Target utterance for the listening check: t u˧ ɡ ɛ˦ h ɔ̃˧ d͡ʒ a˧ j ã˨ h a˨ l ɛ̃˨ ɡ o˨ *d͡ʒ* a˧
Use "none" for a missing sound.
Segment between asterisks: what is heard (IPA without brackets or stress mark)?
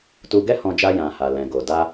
d